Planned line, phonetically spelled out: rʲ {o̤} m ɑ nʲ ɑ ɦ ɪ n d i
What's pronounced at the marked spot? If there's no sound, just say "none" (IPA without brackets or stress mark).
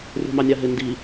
o̤